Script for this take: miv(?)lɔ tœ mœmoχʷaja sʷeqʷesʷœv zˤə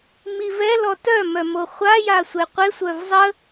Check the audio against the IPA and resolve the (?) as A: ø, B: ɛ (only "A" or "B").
B